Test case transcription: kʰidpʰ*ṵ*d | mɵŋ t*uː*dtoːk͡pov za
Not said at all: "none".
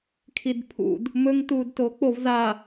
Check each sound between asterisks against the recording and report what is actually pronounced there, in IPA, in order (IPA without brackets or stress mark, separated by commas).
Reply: ṵ, uː